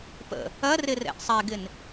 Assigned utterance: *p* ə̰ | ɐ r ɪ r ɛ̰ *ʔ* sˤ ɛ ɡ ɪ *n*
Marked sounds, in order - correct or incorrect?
correct, correct, correct

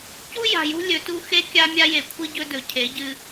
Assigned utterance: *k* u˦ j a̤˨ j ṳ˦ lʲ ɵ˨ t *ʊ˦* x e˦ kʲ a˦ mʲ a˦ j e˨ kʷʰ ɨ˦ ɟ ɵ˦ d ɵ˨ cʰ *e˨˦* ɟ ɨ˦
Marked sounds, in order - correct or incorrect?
incorrect: c, incorrect: u˦, correct

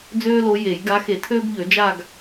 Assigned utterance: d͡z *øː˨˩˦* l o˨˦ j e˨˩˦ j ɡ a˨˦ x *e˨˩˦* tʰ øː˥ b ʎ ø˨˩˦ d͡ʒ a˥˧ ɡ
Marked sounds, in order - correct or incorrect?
incorrect: øː˥, correct

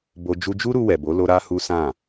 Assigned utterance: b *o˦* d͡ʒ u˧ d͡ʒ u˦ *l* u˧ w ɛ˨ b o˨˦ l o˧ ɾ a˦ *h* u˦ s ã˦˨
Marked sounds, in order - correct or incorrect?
incorrect: o˧, incorrect: ɾ, correct

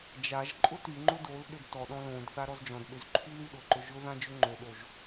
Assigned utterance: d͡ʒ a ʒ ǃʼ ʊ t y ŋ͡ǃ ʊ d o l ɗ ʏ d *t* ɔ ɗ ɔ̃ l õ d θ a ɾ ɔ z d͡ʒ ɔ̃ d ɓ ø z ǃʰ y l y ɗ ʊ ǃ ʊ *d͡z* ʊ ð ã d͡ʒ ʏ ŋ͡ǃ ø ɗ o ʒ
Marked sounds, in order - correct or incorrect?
correct, incorrect: ʒ

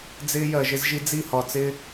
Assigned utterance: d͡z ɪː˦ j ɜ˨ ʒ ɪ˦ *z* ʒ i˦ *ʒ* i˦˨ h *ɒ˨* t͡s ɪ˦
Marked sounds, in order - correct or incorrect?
correct, incorrect: d͡z, correct

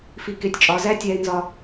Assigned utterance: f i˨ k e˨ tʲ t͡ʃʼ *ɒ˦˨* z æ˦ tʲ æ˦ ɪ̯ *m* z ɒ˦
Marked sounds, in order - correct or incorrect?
incorrect: ɒ˨, incorrect: n

